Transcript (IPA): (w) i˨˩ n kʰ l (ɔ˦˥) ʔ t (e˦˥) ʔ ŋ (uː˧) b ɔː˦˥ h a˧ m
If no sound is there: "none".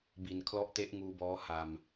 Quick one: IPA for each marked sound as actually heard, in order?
b, ɔ˦˥, e˦˥, uː˧

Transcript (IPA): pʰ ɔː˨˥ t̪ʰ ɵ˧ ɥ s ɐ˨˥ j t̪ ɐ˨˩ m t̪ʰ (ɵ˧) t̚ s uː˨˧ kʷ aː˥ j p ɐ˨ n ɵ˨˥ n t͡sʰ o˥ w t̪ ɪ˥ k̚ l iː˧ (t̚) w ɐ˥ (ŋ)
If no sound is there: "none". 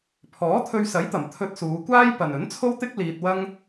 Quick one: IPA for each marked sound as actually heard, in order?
ɵ˧, t̚, ŋ

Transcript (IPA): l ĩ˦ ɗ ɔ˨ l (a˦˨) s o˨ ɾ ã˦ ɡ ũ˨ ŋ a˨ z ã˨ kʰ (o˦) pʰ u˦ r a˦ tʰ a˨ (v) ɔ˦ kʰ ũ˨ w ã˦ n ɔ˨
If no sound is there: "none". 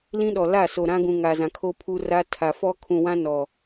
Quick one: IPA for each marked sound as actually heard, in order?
a˦˨, o˦, f

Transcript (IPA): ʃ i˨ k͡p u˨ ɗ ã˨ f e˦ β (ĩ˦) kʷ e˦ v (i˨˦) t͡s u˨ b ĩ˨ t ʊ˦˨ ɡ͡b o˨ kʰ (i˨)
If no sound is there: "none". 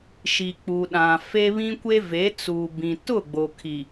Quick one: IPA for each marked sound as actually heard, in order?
ĩ˦, e˨˦, i˨

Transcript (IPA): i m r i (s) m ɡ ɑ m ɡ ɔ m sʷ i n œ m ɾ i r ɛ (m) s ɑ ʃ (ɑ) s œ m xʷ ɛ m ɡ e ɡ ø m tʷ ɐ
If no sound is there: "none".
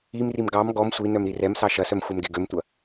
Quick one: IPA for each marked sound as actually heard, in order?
none, m, ɐ

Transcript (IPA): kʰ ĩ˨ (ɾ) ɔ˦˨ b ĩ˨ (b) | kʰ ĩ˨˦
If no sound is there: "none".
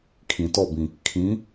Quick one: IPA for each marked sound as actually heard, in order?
t, none

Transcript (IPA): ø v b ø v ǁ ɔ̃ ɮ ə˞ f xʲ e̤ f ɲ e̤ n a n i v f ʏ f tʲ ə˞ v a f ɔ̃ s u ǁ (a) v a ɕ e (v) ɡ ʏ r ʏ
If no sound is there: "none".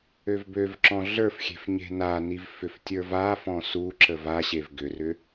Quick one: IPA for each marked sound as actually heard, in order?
ə, v

